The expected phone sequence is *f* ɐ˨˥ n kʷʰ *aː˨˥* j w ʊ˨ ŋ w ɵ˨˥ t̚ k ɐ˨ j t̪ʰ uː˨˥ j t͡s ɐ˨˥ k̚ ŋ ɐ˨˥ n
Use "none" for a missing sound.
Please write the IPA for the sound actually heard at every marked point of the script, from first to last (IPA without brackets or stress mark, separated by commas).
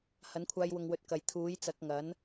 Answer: h, aː˧